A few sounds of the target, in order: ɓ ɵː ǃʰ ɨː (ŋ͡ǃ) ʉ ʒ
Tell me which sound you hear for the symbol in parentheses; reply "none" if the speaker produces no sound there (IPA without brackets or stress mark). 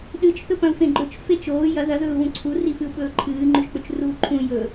ŋ͡ǃ